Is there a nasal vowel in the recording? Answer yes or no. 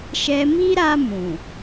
yes